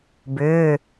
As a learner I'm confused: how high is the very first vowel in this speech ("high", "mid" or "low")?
high